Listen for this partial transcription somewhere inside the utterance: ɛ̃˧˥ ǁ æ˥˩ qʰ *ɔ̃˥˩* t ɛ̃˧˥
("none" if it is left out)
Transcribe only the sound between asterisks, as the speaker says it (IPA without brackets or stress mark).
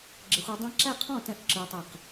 ɔ̃˥˩